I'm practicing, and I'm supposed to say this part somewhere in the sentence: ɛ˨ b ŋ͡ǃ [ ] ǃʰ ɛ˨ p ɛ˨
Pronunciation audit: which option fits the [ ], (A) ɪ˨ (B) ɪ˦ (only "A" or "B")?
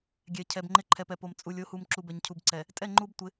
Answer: B